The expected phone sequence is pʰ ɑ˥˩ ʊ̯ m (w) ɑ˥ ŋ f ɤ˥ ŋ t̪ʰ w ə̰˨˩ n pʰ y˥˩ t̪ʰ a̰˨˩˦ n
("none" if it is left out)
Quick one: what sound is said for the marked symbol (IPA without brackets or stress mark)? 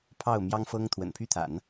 j